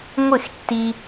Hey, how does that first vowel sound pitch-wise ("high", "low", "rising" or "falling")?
falling